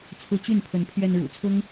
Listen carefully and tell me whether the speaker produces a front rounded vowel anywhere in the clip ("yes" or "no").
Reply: yes